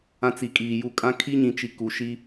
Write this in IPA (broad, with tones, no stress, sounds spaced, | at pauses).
ã˦ t͡s i˨ kʼ iː˨ j u˦˨ kʼ ã˦ kʰ i˦ ɲ ĩ˨ t͡ʃ i˨ k u˨ ʃ i˦